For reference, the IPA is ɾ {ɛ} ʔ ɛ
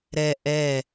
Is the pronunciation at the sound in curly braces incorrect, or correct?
correct